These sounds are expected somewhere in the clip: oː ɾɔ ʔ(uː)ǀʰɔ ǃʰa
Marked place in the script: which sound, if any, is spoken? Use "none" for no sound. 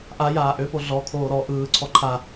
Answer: ɯː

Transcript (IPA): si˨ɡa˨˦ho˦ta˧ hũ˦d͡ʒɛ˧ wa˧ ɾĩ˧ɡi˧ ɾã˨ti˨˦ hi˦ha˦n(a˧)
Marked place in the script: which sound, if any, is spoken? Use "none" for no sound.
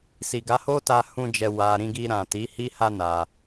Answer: a˧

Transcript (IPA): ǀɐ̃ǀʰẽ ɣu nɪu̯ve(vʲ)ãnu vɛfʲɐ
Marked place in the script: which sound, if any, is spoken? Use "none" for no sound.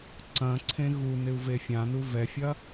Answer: fʲ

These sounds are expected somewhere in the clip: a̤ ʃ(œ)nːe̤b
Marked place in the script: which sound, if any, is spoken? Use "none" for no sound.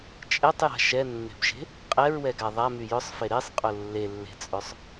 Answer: ɛ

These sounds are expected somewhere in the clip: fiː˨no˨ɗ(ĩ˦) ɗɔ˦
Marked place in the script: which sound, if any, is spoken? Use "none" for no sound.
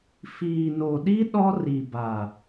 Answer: i˦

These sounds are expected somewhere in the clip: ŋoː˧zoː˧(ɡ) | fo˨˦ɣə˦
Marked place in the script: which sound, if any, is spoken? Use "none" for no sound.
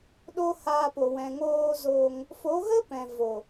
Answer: ŋ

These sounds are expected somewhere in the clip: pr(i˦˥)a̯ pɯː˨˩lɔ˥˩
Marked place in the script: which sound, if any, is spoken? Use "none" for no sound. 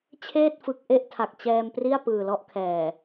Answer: i˥˩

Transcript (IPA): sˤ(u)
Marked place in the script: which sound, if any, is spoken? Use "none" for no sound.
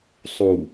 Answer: u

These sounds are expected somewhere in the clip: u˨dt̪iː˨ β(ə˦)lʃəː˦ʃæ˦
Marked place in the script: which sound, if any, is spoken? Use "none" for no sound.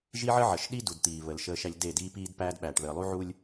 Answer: ə˨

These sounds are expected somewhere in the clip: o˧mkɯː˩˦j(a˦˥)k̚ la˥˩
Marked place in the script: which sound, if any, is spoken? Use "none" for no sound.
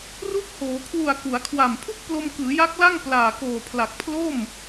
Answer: a˦˥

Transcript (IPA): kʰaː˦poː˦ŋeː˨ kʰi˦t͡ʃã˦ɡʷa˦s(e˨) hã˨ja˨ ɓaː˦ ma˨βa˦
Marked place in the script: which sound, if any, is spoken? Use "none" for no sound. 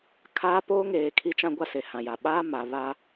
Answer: e˨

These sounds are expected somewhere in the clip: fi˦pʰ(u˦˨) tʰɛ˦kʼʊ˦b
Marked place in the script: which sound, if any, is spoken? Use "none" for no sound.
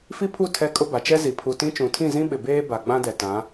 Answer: u˦˨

